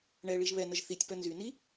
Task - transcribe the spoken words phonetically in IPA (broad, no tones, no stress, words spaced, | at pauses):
ɳɛ ɭiʒβɛnəʒ θitʲpœ nzyni